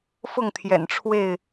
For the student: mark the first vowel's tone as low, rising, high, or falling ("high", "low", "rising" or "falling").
falling